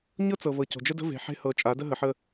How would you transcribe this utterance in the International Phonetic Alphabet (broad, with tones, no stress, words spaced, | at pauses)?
ɲɤ˦ t͡sɤ˨ vɤ˨co̤˨d͡ʒə˦də̤˦ ve̤˨ħe̤˦ hɤ˨t͡ʃʼa˨˦ də˦ɦə˨ħə˦